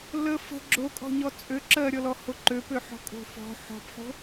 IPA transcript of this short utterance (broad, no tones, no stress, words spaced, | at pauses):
lə fə̤ ɡ͡ǁokʼɔ̤ɲɔ t͡sʼø ǁɜɾʲɔlɔ hoǃøpøħɔ̤ kʼo̤fɔ̤ ħɔ̤pħo̤